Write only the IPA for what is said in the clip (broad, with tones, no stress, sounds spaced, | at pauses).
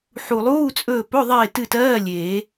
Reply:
ħ u˨˩ lˠ uː˧˥˧ t͡sʼ ɵː˦˨ p ɵ˧˥˧ ðˤ eː˦˨ t ɨ˦˨ t ɜː˧˥˧ lʲ eː˨˩˦